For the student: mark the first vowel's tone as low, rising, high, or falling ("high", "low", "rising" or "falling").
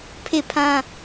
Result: falling